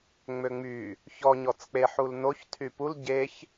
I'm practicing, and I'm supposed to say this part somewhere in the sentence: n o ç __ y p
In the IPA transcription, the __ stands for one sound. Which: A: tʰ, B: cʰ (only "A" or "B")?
A